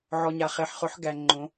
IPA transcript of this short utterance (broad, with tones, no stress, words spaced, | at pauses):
ʕɔ˨ɲa˨χe˨ħ χʊ˨˦ħ ɡæ˨ ŋ͡ǃõ˨˦